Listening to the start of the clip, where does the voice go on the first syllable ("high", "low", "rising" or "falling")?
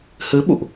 rising